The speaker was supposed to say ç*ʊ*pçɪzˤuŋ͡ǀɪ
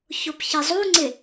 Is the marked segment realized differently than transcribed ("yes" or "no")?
no